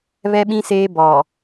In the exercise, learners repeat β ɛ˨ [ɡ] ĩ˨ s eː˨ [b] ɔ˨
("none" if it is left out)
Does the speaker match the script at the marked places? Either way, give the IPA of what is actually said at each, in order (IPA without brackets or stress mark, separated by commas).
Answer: ɓ, b